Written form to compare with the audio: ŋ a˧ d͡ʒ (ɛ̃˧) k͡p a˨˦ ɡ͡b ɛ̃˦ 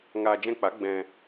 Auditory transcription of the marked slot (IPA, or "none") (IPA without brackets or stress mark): ɛ̃˧